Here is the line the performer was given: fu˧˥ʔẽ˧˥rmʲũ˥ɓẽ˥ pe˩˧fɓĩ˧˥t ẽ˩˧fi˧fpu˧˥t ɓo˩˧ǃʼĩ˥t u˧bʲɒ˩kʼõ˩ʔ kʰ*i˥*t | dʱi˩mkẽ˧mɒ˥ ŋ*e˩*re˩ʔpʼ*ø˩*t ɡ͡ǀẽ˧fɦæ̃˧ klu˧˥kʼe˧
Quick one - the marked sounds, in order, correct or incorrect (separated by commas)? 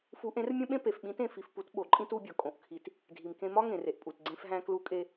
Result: incorrect, incorrect, incorrect